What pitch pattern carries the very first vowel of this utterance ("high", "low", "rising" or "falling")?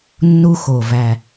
high